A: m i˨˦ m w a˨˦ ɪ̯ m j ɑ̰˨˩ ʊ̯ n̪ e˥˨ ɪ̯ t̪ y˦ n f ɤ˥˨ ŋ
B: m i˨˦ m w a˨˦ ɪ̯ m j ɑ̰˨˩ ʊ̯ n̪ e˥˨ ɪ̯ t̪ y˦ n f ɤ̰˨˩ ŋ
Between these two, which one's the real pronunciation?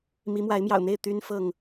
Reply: A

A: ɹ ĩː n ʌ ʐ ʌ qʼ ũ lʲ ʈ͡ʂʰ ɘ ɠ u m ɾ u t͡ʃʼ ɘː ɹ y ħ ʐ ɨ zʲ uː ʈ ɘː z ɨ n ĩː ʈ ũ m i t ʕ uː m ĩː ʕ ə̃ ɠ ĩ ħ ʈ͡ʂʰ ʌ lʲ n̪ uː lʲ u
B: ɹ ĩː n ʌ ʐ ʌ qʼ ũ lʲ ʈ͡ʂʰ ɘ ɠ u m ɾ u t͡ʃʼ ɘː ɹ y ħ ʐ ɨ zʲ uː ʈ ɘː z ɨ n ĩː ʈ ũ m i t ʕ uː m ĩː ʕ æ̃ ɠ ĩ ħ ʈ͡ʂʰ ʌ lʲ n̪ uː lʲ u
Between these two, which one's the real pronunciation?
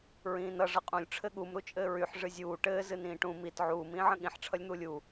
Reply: A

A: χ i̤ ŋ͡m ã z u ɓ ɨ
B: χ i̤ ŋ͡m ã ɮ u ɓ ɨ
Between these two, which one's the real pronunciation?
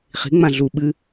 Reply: B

